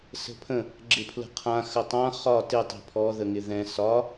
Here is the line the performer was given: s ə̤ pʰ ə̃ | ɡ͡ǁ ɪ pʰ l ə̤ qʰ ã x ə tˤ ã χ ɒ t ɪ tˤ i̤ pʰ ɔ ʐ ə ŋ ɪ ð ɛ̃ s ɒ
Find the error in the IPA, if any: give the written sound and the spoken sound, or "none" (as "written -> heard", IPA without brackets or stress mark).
ʐ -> ð